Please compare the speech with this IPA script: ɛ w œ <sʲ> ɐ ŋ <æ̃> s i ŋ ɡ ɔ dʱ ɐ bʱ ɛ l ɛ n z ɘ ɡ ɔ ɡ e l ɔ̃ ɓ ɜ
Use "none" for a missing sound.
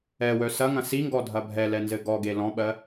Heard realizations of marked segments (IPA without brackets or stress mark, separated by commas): s, ɐ̃